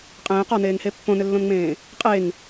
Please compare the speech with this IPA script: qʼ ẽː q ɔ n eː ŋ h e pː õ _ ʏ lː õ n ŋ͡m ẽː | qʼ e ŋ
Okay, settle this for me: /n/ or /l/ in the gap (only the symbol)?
n